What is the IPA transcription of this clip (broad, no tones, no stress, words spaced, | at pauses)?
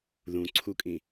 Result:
ðũǀʰukʼĩ